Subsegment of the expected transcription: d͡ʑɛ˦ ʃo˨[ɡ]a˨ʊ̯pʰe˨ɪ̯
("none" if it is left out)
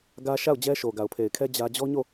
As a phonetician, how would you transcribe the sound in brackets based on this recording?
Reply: ɡ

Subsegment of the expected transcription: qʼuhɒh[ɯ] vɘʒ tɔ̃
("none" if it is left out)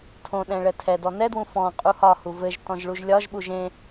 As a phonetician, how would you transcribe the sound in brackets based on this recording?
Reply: u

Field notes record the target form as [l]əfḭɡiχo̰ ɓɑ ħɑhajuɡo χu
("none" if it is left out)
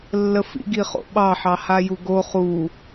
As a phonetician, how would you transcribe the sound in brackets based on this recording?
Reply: lː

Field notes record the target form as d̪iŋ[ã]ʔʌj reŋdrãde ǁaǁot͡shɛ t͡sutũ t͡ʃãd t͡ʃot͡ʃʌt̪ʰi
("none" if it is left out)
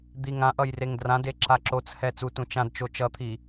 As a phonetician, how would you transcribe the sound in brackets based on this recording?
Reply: ã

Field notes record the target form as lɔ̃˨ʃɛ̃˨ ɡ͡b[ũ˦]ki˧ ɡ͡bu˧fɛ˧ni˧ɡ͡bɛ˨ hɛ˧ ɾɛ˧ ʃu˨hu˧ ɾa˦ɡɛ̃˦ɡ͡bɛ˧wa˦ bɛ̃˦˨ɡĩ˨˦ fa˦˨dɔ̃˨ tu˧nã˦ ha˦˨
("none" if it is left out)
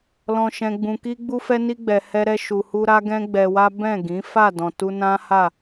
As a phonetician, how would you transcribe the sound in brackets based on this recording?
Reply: ũ˨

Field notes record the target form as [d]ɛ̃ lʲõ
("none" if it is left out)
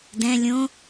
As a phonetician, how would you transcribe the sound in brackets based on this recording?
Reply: d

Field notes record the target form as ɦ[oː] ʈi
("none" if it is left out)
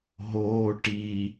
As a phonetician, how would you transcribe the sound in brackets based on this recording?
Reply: oː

